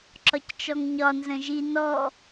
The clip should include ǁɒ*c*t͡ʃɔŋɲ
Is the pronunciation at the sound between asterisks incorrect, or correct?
correct